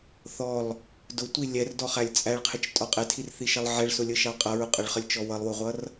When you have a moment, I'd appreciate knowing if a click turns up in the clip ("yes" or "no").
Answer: no